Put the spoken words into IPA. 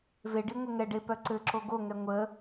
v e ɖ i ŋʷ ɘ ŋ ɛ ɖ e p œ ǀ ɘ ǁ o ɡ o ŋ ɛ ŋʷ ə

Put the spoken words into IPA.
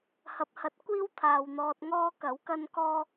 h ɐ˨ p̚ h ɐ˨˥ t̚ kʷ iː˥ w t̪ʰ aː˨ w n̪ ɔː˧ t̚ ŋ ɔː˥ k ɐ˨˥ w k ɐ˥ n k ɔː˥

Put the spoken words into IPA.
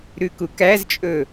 ɾ ʉ k u k æ z t͡ʃʼ ɵ

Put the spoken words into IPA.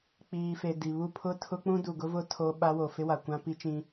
k͡p iː˨ f e˨ d i˨ β u˦˨ pʰ ʊ˦ tʰ ʊ˦ k͡p ũ˦ d u˨ ɡ ʊ˦ v ʊ˦ tʰ o˦ ɓ a˦ w o˨ f ɪ˦ w a˨ kʷ ã˦ p i˦ t͡ʃ ĩ˦

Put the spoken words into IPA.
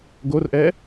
ɡ o r ʔ ɛ

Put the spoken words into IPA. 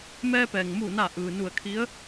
m ɛː˧ p ɛː˩ ŋ m uː˧˩ n a˧˩ ʔ ɯː˩ n u˧˩ ə̯ kʰ i˧˥ ə̯

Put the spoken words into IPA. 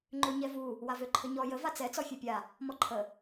ŋ͡ǃ ø ɲ ɛ v u | w a v ø ǃʰ ə ɲ ɔ j ə v a t͡s ɛ t͡s ɔ fʲ ø pʲ a | m ɔ ǃʰ ə

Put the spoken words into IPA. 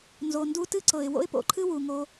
n z o˩ n d u˧ t ɨ˥ ǀ ɤ˩ ɪ̯ w o̰˥ ɪ̯ p o̰˧ ǃʰ ɨ˥ w u˩ ŋ o˧

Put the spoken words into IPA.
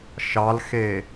ʃ ɑ l x e

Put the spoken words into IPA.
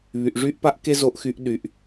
β y˩ ʔ ʐ y˧ ʔ p a˧ ʔ k e˥ z o˧ ʔ x y˧ ʔ ɗ y˩ ʔ

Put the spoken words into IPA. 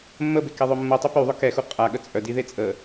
mː ə b e k e ðˤ œ mː u tˤ u p y ðˤ œ k ɛ x u qʼ a ɠ ə t͡sʼ œ d i ð e t͡sʼ ə

